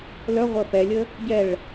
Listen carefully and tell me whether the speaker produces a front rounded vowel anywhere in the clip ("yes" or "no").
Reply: yes